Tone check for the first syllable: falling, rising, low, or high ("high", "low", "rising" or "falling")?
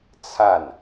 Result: falling